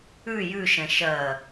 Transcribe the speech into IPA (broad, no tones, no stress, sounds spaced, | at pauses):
ʉ j ʉ ʃ ɛ̃ ʃ ɜ